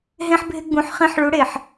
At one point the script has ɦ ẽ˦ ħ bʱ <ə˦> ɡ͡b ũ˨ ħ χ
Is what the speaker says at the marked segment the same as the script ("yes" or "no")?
no